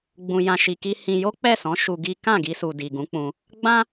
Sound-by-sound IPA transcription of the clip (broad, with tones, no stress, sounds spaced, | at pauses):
ɡ͡b ũ˨ j ã˨ ʃ i˨ k i˧ h ĩ˧ j o˦ k͡p ɛ˦˨ s ɔ̃˨˦ ʃ u˧ ɡ i˦ k ã˦˨ ɡ i˧ s u˨ d i˨ ɡ ũ˨˦ k͡p ũ˧ | ɡ͡b ã˦